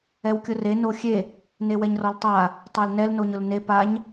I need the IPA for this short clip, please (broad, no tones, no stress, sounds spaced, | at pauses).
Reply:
ɛ w kʲ ʊ r e n o xʲ e | n e w ɛ ɲ r ɔ l tˤ a | tˤ a l n ɛ l n o ɲ ʊ l n e p a ɲ